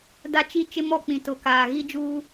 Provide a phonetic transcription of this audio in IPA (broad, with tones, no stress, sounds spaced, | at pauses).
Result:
d a˦ t͡ʃ i˦ t͡ʃ ɪ˦ m ɔ˦˨ k͡p ĩ˨ t ʊ˨ k aː˨ ɣ i˦ d͡ʒ uː˦